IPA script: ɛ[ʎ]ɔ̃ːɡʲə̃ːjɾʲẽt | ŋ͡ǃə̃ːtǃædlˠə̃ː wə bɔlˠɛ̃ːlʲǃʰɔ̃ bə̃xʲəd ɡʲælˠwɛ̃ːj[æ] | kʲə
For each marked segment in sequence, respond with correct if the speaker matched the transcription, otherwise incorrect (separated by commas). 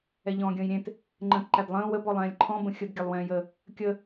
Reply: correct, incorrect